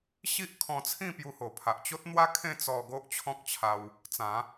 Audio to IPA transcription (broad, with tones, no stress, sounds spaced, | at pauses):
ɕ i˦ ʔ kʰ ɔ̃˧ t͡sʰ ĩ˥˧ p j u˧ h o˨˩ pʰ a˨ ʔ t͡ɕ o˦ t̚ n̪ w a˦ kʰ ẽ˥˧ t͡s ɔ˧ ɡ o˦ ʔ t͡ɕʰ ɔ̃˦ k̚ t͡ɕʰ a˧ w | t͡s ã˨˦